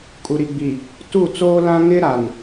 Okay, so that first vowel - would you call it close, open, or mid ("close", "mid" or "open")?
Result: close